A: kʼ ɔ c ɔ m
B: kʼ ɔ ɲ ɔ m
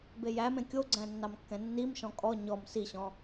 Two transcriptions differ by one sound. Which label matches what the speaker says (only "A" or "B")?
B